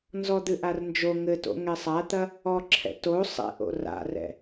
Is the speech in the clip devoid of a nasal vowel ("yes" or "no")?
yes